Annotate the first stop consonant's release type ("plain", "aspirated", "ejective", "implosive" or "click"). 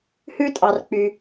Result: ejective